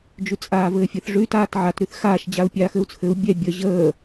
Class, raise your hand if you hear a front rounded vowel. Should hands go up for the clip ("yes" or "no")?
yes